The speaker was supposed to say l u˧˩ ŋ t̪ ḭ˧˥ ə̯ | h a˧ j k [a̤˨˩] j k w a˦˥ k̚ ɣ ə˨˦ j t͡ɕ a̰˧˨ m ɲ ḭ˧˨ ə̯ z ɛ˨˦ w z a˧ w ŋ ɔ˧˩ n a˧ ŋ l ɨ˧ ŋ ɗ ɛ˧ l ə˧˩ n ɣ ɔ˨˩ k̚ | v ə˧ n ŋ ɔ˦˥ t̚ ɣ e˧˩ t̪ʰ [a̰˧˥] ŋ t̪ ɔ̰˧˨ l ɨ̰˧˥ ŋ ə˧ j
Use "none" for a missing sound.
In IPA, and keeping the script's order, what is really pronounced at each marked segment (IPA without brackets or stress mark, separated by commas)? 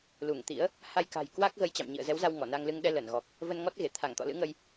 a̤˨˩, a˧˩